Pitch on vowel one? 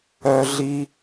high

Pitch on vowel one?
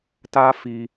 high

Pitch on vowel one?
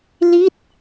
falling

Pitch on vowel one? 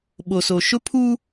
low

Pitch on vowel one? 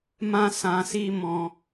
high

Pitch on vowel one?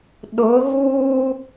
rising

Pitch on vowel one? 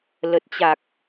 low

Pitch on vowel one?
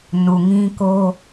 low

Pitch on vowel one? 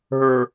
low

